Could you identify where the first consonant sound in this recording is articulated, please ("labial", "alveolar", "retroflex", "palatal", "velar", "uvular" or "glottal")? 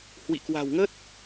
glottal